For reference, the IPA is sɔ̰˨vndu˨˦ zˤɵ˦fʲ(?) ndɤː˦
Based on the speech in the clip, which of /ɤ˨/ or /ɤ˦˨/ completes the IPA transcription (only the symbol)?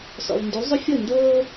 ɤ˦˨